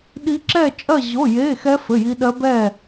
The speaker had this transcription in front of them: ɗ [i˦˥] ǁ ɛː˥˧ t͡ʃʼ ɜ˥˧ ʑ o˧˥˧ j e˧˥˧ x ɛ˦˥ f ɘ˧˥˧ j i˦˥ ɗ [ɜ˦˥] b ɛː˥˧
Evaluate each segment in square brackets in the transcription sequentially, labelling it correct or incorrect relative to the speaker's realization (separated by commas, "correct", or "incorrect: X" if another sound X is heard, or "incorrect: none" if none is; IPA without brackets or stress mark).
correct, correct